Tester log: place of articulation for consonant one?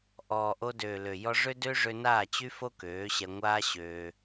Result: glottal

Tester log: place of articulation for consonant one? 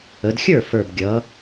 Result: alveolar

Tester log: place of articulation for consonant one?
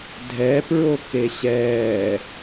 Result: alveolar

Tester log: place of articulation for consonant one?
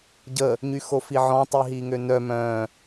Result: palatal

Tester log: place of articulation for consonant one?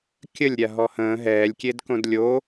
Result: velar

